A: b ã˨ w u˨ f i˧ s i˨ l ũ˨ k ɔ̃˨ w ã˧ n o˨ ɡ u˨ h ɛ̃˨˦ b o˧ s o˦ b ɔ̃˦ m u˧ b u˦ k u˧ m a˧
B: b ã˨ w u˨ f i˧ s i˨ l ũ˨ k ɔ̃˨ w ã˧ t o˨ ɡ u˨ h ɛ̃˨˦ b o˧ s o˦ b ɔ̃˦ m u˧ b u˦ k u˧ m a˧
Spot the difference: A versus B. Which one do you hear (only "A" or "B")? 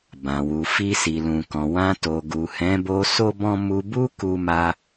B